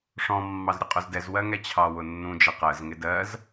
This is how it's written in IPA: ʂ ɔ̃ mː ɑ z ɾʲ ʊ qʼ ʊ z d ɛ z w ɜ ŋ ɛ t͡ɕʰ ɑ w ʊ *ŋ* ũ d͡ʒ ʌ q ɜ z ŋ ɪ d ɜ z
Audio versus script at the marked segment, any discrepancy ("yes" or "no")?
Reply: yes